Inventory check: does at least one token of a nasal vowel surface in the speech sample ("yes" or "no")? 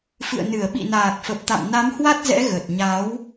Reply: no